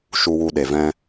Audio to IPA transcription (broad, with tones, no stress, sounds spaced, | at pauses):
ʃ u˧ w u˧ ɗ e˨ v ɛ̃˦